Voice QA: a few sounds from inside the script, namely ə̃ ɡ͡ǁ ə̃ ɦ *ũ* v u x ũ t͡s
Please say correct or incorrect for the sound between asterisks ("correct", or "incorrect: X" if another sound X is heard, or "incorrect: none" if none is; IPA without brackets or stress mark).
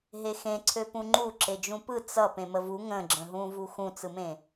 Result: correct